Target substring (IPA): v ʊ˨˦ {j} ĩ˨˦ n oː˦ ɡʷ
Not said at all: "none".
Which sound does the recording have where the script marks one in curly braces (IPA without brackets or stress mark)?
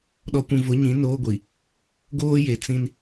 ɲ